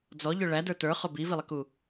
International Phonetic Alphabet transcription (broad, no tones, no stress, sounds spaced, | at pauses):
d͡z ɔ ʎ ʊ ɭ æ d ə˞ t ə˞ χ ʊ b i v i lˠ ɪ k u